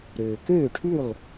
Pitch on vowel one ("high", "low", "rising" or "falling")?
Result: low